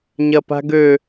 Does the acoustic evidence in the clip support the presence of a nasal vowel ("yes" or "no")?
no